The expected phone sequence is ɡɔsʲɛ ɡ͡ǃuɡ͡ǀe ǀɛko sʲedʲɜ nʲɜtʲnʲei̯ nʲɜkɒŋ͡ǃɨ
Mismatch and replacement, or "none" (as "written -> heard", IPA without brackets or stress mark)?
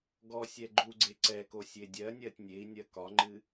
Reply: none